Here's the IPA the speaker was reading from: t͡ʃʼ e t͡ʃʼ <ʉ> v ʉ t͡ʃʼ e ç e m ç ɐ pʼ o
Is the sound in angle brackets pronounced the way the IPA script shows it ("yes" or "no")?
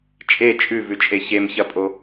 yes